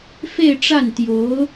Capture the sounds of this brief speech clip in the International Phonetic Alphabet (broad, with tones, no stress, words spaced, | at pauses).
fe˥˧ɪ̯ʈ͡ʂa˥˩nt̪jo˧˥ʊ̯